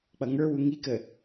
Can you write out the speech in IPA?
k͡p ʌ ŋ ə˞ w u ŋ i k ə

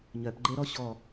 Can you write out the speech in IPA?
ɲ œ p ɡ͡ǃ e ɾ ɔ ɕ ɔ

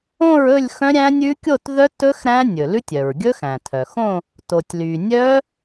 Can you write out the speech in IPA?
õ˥˧ ɹ ɵ˥˧ lʲ x œ̃˦˥ ɾʲ æ̃˦˥ nʲ ʉ˦˥ kʲ o˥˧ t ð œ˦˥ t ɵ˦˥ x ɾ æ̃˦˥ nʲ ɵ˩ l ʉ˦˥ tʲ œ˩ ɹ ɡʲ ɵ˦˥ x æ̃˩ tʰ œ˩ x õ˥˧ | t o˩ tʲ l y˩ nʲ œ˦˥

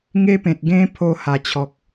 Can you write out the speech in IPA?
ŋ e˦ p ẽ˨ t̚ ɡ ẽ˦ pʰ o˧ h a˨˩ t͡ɕʰ ɔ˨ k̚

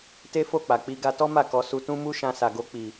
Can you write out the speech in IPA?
t e˦ f o˦˨ k͡p a˨ k͡p i˧ ɡ a˧ t ɔ˦ m a˦˨ k ɔ˧ s u˧ t ũ˦ m u˦ ʃ ã˧ s a˨ ɡ o˧ k͡p i˨

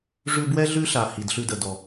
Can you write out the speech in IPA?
ʐ ʉ˧ b w ɛ˦ ɮ ʉ˦ ɬ a˨ h i˨ d ɬ ʉ˧ d ə˨ d ɔ˨

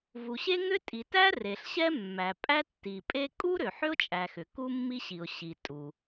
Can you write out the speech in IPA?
v u˩ ɕ e˥ ŋ ʏ˥ tʼ i˩ t æ˥ r e˩ ɬ ɕ ɛ˥ mː æ˩ pʼ æ˥ tː i˩ pʼ e˥ kʼ u˥ ɾ ʏ˩ ħ ʏ˥ ʊ̯ t͡ʃʼ æ˩ x ʏ˩ k u˥ mː i˥ ɕ i˩ ʊ̯ ɕ i˩ tʼ u˩

